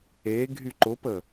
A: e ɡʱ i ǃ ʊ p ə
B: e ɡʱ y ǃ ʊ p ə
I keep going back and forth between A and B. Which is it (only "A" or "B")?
B